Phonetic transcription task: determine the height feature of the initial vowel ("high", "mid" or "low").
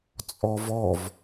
mid